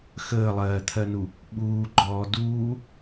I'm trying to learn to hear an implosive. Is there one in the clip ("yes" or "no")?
yes